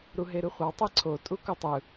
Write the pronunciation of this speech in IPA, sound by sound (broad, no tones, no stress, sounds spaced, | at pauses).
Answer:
ɾ u ɦ e ɾ ɯ χʷ ɑ tˤ e ǀʰ o tʼ u k o tˤ ɯ